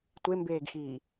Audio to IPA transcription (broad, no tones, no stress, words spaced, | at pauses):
tʷembeːɡxiː